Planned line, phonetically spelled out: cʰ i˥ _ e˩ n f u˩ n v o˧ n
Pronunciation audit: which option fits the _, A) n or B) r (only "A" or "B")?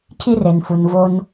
B